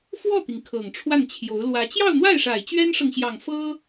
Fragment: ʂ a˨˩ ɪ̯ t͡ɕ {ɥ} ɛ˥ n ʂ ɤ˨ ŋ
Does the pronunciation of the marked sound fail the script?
no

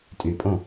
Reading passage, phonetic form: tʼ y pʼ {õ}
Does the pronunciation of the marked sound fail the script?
no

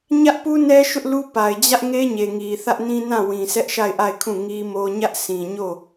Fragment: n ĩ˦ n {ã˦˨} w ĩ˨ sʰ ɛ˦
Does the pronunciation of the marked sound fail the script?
no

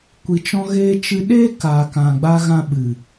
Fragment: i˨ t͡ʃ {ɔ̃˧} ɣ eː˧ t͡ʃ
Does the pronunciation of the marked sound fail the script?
no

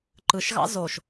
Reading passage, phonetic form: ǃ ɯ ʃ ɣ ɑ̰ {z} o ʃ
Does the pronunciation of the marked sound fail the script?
no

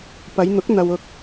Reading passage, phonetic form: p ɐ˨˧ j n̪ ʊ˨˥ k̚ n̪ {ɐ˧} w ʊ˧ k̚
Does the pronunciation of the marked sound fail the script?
no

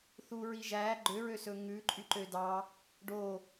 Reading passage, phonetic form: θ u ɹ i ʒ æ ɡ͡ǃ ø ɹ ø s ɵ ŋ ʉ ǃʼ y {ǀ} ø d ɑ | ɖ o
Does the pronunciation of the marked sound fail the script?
yes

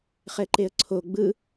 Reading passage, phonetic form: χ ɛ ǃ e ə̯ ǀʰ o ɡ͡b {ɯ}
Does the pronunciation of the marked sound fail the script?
no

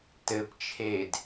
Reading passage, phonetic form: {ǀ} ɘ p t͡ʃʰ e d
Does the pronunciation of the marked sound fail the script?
yes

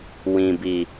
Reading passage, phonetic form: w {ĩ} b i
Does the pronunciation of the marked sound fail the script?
no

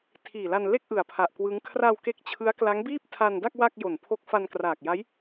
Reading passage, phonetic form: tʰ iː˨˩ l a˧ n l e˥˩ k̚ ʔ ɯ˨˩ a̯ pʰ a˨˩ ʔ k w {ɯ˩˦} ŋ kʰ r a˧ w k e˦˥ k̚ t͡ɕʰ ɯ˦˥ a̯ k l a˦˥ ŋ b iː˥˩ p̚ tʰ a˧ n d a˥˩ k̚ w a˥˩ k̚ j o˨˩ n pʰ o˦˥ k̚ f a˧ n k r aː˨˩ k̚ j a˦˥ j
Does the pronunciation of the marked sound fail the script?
yes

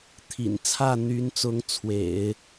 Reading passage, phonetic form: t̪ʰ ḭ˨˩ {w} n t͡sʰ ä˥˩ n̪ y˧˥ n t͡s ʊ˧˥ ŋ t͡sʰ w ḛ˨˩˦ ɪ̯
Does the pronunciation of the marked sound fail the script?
yes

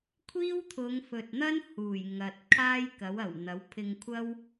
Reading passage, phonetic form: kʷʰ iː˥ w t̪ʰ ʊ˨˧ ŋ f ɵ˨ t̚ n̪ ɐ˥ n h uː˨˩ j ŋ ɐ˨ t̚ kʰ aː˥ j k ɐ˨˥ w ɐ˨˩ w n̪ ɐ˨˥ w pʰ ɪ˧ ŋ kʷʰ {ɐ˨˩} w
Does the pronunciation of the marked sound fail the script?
yes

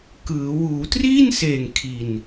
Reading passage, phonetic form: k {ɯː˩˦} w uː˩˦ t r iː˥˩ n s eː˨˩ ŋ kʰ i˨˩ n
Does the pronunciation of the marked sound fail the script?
no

